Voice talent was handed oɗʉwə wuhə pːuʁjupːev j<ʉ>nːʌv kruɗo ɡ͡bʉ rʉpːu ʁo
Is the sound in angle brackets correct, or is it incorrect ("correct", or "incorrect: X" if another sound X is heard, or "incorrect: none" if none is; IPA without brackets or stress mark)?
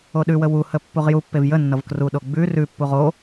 incorrect: ə